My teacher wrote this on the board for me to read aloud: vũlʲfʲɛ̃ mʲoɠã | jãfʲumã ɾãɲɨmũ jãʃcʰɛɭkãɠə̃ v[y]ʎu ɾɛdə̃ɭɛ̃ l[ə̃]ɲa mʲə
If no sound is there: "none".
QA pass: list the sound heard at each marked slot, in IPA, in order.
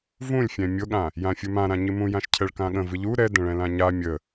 ɨ, ã

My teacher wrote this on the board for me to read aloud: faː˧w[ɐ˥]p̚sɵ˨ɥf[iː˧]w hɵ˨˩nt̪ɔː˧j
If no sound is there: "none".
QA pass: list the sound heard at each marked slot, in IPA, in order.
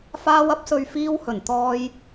ɐ˥, iː˧

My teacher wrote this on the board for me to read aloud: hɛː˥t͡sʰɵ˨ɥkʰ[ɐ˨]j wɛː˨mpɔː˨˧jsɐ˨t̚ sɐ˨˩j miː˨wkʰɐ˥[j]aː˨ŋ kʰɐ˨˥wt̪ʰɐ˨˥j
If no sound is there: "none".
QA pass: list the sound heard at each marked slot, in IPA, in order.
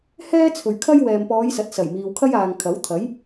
ɐ˥, j

